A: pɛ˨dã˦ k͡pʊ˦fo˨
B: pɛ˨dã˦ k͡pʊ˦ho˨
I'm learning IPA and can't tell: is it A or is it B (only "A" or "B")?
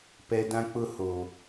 B